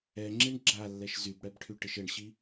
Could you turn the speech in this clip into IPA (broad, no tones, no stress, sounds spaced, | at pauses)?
ɛ ŋ͡ǁ i ɳ ɡ͡ǁ a lː ɛ ʃ z y b ɽ ɛ b ʈʰ y ʈ ɪ ʃ ɘ ɳ ɕ i